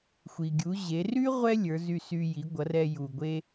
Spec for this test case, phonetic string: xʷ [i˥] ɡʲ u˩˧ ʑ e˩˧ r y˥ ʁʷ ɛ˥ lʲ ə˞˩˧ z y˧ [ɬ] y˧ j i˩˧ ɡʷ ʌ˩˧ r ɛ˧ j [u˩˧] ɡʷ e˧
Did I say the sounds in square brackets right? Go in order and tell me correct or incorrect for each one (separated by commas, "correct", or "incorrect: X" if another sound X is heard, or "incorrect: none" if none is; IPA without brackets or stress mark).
incorrect: i˩, incorrect: s, incorrect: u˩